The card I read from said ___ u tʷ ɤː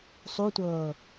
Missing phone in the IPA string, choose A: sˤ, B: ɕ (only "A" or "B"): A